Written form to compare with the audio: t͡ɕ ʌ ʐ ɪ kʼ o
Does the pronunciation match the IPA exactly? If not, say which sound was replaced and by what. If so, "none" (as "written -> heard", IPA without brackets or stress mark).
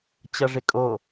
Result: none